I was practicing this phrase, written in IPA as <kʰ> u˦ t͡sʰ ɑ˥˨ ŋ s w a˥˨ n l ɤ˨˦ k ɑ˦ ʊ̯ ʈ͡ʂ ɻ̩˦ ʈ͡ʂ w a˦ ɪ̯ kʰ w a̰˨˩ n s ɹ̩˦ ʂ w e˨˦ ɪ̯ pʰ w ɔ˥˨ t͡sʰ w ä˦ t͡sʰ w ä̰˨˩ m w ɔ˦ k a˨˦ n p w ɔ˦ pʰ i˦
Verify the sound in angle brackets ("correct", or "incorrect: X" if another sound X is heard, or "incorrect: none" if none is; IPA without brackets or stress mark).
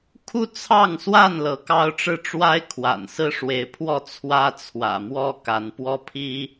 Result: correct